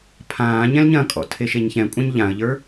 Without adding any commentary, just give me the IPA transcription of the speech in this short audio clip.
pʰ ãː ɲ ɛ̃ l ɲ ɐ̃ kʼ ɔ̰ tʰ e ʃ e ɲ ç ɛ̃ kʷʼ ɐ̃ ɲ ʎ ã ə̯ ʎ ə˞

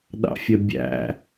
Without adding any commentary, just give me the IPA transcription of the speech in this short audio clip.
ɗ ɑ̰ fʲ ə bʲ æ̰

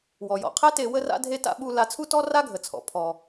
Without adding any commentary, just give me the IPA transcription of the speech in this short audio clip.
w ɔ˩ j ɔ̰˩ qʰ e˥ t e˧ w ə˥ r a̰˥ dʱ e˥ t a̰˥ ɓ u˧ l a˧ t͡sʰ u˥ t ɔ˥ r a˥ ɡʱ ə˩ t͡sʰ ɔ̰˩ pʰ ɔ˩

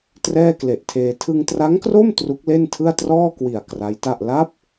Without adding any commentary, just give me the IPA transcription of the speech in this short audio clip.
t r ɛː˥˩ k l e˨˩ ʔ tʰ eː˧ tʰ ɯ˧ ŋ t r a˦˥ ŋ k r o˥˩ m t r u˦˥ k̚ l e˥˩ n tʰ ɯ˥˩ a̯ t r ɔː˥˩ k w i˨˩ a̯ k r a˦˥ j t a˥˩ ʔ l a˦˥ p̚

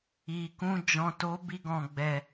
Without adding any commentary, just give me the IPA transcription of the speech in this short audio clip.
i˨ k ũ˧ d͡ʒ ɔ̃˨ t o˨˦ b i˧ ɡ ɔ̃˨ ɡ͡b ɛ˨

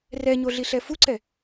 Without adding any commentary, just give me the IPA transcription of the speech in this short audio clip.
r ɛ ɲ o ɮ i ɬ ɛ f u ǀ ɛ

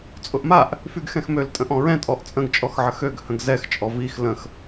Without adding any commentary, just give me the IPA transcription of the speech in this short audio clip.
t͡sʼ ʊ ʔ m a ʔ | f y ɡ x ɛ̃ x m ø l tʼ ə̃ ʔ ɔ̃ ɹ ɛ̃ tʼ ɔ ʔ t͡sʼ ə̃ ɡ t͡ʃʼ ɔ x ʕ ə x ø ɡ h ə̃ ɡ z ɛ x t͡ʃʼ ɔ v i x l ə̃ x

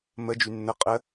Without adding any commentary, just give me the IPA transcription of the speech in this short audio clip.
m ə d͡ʒ y nː ə qʼ ə

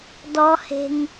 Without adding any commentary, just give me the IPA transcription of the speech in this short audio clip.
d ɔ h e̤ ŋ

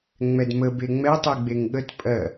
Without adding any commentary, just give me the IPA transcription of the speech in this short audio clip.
ŋ͡m ɛ d m ə b e ŋ͡m ɛ tˤ i ɡ͡b e ŋ ɠ ə t pʼ ɜ

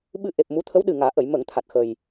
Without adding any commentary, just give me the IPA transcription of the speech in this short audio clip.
ɓ ɨ˧ ʔ e˨˩ p̚ m u˧˥ t̪ʰ ə˧˥ w ɗ ɨ˨˩ ŋ aː˨˩˦ ʔ ə˨˩˨ j m ə˨˩˨ ŋ t̪ʰ a˨˩ t̚ x ə˨˩ j

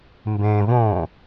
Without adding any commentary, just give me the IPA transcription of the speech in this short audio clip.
m b ẽ v õ

